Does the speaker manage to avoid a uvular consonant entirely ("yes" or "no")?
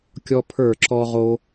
no